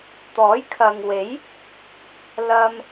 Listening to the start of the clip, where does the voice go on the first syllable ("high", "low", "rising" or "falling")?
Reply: rising